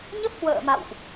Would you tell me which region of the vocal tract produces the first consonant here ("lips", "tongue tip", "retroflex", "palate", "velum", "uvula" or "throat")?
palate